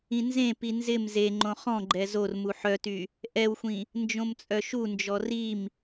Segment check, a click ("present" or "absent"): present